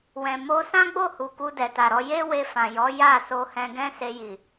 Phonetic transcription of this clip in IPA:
wɛ̃˨mo˧sã˦ɡ͡bo˦˨ hu˨ku˧ dɛ˨ta˨ɾɔ˨˦ je˦we˧fã˨jɔ˨˦ ja˦˨ so˧hɛ̃˧ɡɛ̃˦ se˧ji˨

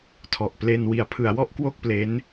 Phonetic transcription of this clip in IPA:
tʰɔ˨˩ʔple˧n wi˩˦a̯pʰɯ˩˦a̯wɔ˥˩ʔ kwo˥˩k̚ple˦˥n

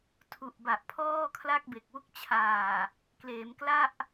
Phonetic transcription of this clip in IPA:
tʰu˨˩ʔba˨˩ʔ pʰɔː˥˩kʰla˥˩k̚be˨˩k̚wu˥˩k̚ t͡ɕʰaː˨˩ | kleː˩˦m kla˥˩ʔ

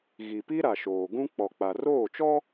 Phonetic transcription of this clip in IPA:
ɣi˨pi˦ ɾa˨ʃoː˨ɡũ˦ k͡pɔ˨k͡pa˨roː˦˨t͡ʃɔ˦

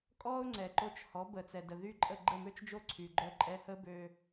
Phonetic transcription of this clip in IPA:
kʼɔ˥ʊ̯ŋ͡ǀɛ˩ ǃo˧t͡ʃ hɔ˩˥bə˩t͡sɛ˩ də˩ðy˥˩ǃʼə˥˩ ɡ͡ǃə˥˩mø˥t͡ʃd͡ʒo˥˩ ǀʰy˩ɡ͡ǃœ˧ ǃʼɛ˧hə˥bø˧

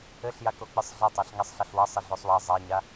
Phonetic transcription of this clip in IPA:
ɘɬja kok͡pɨsˤɮɐtˤaɬ ŋɛsˤɬɐɬwɐ sˤɘɮosˤwa zˤaɲa

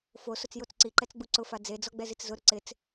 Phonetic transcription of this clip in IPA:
fosʊt͡s jot͡sǀiǃɛt͡s ɡ͡buǀʊfa d͡zed͡zɔ ɡ͡bɛzit͡szʊɾʊ ǀɪt͡s

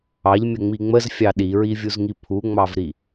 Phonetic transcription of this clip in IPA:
ɑʎmʲəŋ͡mi ŋ͡məzfʲɑ ɗiɹivʲuzŋi pʰuŋ͡mɑvɾi

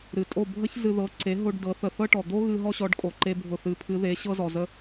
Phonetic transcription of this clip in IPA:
ɾɨ˩tʼo˥˩bʱə˥ç zɨ˧ðɤ˩˥ ǀe˩˥ɦo˧ɖ dɤ˩˥θə˧ θɤ˥ʈɔ˩ d̪o˥ɣɨ˧ ɦɔ˥ɕɔ˩˥ɖkʼo˩ ǃe˥bʱʊ˥˩ θɨ˩˥pʰɨ˩˥ðe˩˥ ɕɤ˥zɔ˩zə˥

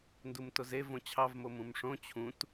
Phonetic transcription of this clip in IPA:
ndumtoze võt͡ɕʰɑvmo mũmʂõ t͡ɕʰũt

